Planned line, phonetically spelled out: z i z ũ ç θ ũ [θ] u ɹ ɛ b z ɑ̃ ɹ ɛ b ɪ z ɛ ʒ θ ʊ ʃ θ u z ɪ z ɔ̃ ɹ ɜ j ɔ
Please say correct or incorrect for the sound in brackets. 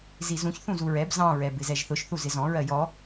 incorrect